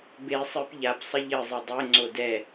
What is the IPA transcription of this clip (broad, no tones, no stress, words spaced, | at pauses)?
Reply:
be sˤɨp ʎapsˤɘ ʎɘzˤɘ dˤeŋ͡ǀo dɛ